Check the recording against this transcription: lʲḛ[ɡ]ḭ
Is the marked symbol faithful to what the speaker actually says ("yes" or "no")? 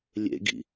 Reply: yes